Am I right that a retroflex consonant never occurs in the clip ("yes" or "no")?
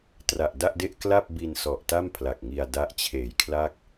yes